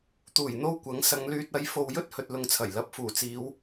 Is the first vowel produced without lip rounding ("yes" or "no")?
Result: no